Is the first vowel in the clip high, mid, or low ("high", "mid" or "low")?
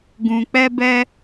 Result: high